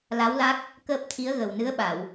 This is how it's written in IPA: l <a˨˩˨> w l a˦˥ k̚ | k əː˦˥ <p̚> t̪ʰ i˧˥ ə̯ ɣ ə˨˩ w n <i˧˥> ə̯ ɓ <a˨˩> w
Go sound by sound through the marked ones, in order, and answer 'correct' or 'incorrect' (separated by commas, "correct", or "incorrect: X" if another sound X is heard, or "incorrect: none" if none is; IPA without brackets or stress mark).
incorrect: a˧˥, correct, incorrect: ɨ˧˥, incorrect: a˨˩˨